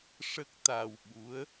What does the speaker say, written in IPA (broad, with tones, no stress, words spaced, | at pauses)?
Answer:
ʂə˦˥k̚t̪a˧wɓu˧˥ə̯